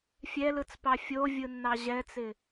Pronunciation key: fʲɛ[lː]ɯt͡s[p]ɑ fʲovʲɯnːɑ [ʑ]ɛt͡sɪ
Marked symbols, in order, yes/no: no, yes, yes

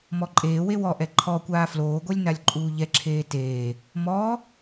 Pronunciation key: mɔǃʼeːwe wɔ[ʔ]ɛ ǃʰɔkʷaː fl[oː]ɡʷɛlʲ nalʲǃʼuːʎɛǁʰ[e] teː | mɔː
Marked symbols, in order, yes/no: yes, yes, no

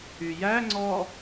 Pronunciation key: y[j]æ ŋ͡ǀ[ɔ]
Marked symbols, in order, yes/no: yes, yes

